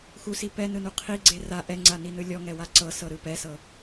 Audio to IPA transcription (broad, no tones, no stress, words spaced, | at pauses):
xusi pɛnɯnu qʰiɡ͡ǀe ra ʔɛŋ͡ǀaninɯ lʲɔŋɛwa ǀɤsɤɾɯ pɛsɤ